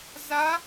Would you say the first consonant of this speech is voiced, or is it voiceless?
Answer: voiced